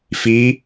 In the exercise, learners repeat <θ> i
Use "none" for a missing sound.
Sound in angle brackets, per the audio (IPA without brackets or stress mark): f